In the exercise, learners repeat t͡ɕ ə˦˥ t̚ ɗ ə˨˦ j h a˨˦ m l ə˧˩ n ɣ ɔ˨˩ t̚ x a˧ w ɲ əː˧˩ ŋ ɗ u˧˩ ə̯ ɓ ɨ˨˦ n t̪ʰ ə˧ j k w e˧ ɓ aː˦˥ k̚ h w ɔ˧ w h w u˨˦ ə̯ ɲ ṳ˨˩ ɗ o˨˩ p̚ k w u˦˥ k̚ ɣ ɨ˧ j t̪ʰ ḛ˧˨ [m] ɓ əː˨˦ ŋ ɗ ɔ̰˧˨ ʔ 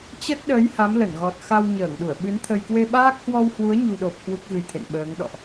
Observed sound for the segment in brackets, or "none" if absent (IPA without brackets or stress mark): n